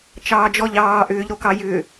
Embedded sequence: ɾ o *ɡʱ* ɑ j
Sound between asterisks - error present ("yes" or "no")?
yes